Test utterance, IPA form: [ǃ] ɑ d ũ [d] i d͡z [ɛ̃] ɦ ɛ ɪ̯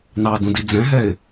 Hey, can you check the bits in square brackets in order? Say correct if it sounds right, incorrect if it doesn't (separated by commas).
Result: incorrect, correct, correct